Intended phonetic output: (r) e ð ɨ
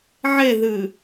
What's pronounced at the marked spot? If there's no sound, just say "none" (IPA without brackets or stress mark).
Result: ʕ